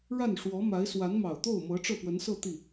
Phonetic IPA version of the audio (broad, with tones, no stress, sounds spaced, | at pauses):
ɻ a˥˩ n ʂ w ɔ˧˥ m a˧˥ ɪ̯ s w a˧˥ n m ɑ˨˩ ʊ̯ t̪ o˥˩ ʊ̯ m ɤ˧˥ ʈ͡ʂ ɤ˥˩ p w ə˧˥ n s ɤ˥˧ t̪ i˥˩